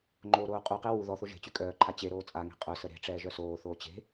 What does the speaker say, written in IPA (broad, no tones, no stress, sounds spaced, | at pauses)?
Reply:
ŋ͡ǃ oː ɾ oː qʼ u q e w u ð ɔ θ o ʒ e̤ t͡ɕ y kʼ œː ǃʰ a t͡ɕ e ɾ oː t͡sʼ a ŋ e̤ qʼ œ s ə ɾ e̤ ʈ͡ʂ ɛː ʒ œ s oː θ oː t͡ɕ e̤